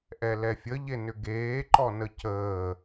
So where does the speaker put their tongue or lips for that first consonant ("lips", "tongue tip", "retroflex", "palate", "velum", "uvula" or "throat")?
throat